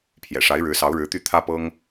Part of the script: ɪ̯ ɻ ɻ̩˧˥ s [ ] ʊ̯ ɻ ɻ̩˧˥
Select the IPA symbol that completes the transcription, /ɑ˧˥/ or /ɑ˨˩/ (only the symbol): ɑ˧˥